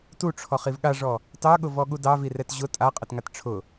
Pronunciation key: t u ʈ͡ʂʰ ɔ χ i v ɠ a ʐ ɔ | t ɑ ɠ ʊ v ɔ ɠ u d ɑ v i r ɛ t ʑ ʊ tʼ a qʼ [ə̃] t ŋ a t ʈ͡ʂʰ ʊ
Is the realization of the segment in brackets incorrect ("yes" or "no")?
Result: yes